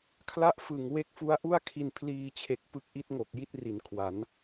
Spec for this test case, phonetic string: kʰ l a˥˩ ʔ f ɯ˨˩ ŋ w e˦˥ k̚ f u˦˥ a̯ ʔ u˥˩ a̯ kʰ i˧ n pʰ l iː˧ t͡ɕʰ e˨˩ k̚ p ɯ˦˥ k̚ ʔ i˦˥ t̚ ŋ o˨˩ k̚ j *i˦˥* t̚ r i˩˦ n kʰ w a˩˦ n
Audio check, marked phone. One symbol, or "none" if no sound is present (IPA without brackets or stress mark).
i˦˥